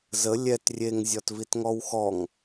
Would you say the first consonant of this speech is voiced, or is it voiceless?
voiced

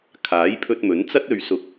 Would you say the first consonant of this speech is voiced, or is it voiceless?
voiceless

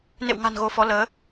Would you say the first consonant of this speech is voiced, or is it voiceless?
voiced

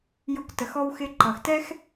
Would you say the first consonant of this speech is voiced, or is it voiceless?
voiced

